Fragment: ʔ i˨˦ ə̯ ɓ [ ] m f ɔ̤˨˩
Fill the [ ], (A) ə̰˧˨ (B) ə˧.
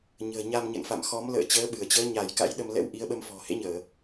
B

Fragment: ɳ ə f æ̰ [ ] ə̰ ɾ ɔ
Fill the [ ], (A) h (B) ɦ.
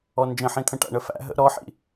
B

